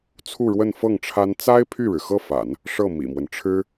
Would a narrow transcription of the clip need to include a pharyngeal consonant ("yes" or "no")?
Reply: no